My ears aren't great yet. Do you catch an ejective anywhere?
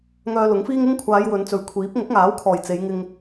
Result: no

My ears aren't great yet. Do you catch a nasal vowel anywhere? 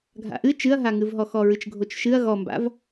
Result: no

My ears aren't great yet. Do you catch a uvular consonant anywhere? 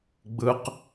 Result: yes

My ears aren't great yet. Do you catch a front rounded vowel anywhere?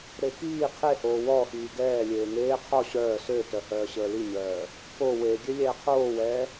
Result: yes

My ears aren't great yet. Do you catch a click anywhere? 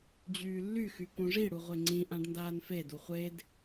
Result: yes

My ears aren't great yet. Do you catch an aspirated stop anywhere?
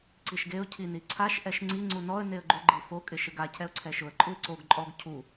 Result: yes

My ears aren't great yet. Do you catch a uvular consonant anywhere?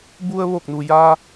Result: no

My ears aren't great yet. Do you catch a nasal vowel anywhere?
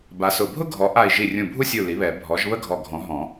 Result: yes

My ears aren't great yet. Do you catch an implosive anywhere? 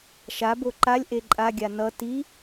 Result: no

